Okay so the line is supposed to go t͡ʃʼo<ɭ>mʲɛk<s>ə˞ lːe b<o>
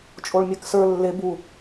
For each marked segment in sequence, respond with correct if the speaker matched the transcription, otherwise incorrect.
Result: correct, correct, incorrect: u

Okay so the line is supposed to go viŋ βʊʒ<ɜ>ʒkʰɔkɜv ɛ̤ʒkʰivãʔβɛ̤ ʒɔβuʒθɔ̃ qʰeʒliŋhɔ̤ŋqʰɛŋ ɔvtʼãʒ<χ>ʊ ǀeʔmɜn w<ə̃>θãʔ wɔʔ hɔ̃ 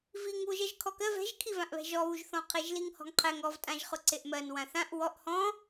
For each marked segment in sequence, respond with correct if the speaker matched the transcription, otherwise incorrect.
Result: correct, correct, incorrect: ã

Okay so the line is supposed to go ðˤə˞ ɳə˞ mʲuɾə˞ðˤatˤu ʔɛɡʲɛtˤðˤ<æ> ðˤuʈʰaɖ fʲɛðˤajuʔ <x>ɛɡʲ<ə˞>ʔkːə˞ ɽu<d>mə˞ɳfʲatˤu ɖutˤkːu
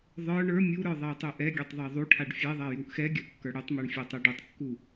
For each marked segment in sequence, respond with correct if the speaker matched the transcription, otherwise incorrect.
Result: incorrect: a, correct, correct, incorrect: tˤ

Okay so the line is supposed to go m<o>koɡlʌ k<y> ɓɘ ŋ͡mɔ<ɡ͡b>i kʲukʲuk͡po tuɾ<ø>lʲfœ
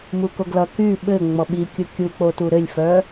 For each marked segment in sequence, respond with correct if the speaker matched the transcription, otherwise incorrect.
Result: incorrect: u, correct, incorrect: ɓ, incorrect: ɘ

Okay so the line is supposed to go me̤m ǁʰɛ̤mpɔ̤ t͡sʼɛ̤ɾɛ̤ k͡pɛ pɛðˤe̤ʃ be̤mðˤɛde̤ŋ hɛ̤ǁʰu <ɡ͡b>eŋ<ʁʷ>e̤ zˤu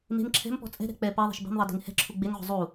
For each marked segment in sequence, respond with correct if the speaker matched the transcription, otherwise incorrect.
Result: correct, correct

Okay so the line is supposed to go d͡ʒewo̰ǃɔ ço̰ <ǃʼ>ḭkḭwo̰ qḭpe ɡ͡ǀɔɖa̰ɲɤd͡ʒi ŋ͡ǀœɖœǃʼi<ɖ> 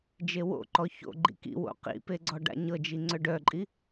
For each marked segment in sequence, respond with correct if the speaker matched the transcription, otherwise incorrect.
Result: incorrect: ɡ͡ǃ, incorrect: none

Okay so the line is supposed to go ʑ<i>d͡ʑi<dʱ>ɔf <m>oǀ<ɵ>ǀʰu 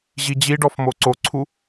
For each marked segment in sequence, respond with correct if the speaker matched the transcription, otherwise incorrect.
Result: correct, incorrect: ɖ, correct, incorrect: o

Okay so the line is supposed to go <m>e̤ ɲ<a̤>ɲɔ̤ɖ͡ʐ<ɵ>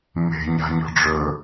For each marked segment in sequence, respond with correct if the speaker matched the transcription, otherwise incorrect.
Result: correct, correct, correct

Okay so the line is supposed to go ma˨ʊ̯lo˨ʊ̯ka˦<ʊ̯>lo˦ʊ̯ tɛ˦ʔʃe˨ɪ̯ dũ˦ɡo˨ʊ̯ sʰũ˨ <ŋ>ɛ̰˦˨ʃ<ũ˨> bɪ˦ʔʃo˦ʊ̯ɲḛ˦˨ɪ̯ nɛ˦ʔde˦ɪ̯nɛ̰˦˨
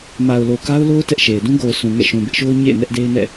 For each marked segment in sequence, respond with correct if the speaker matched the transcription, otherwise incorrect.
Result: correct, correct, correct

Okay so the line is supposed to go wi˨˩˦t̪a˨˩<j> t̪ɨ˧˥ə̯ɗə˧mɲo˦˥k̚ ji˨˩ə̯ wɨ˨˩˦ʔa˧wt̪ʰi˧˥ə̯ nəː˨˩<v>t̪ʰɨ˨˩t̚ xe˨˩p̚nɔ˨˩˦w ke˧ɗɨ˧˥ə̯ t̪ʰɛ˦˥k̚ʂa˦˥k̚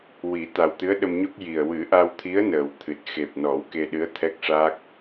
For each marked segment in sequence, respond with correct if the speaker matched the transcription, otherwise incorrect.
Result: incorrect: w, incorrect: w

